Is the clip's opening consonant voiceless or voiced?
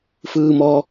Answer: voiceless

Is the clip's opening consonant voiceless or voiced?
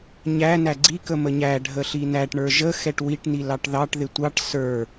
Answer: voiced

